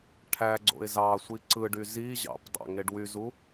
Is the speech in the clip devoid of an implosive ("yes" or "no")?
yes